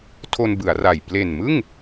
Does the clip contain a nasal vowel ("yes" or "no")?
no